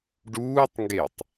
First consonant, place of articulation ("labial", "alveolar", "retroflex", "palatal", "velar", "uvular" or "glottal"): retroflex